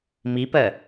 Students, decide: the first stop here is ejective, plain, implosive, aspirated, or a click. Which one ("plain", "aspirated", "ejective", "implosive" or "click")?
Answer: plain